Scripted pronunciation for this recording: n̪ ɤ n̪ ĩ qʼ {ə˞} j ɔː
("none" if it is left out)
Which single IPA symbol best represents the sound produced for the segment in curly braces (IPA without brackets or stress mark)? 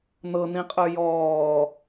ə˞